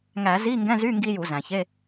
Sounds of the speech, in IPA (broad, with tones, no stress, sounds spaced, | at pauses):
ŋ æ˧˩˧ z i˧˥˧ ŋ ɡ ɛ̃˧˥˧ z y˧˥˧ ŋ ɡ i˦˥ j u˧˩˧ z æ̃˩ ç e˧˥˧